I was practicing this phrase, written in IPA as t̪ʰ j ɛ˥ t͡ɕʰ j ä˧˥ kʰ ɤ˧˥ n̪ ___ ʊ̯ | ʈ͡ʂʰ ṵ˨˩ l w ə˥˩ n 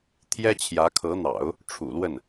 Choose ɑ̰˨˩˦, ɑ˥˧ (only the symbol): ɑ̰˨˩˦